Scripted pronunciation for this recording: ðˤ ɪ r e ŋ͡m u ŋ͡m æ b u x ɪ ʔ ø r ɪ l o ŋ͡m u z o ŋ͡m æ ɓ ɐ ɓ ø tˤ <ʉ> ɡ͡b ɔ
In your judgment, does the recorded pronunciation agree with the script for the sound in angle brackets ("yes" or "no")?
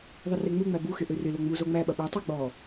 no